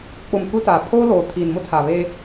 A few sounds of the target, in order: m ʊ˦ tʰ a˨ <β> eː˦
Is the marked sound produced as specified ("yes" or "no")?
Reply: yes